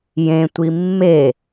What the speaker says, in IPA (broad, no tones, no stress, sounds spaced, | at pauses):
j ẽ tʷ i mː e